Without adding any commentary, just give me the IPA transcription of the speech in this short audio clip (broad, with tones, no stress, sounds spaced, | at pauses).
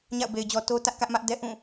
ɲ a̰˦˨ ʊ̯ b e˨ ɪ̯ d͡ʑ ɔ˨ t o˦ t ä˦ ʔ k ä˦ ʔ m ä˦ ʔ d ɛ˦ ʔ ũ˦˨